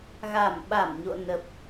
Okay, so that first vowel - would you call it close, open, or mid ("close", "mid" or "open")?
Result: open